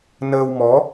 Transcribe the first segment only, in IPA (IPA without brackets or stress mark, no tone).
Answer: n